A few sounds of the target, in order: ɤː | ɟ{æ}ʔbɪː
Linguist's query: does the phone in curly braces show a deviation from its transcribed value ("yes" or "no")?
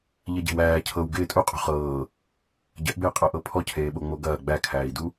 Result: yes